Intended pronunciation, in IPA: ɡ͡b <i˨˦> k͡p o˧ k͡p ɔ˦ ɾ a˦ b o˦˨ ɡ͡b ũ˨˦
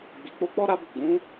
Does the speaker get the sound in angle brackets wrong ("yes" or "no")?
yes